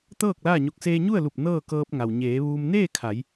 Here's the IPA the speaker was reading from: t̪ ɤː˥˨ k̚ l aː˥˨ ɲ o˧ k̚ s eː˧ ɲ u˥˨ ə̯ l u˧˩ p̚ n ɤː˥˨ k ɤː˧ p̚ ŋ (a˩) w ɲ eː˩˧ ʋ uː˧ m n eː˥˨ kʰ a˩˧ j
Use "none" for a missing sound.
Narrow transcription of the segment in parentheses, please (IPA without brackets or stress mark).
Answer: a˩